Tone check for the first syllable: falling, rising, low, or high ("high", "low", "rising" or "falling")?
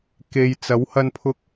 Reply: low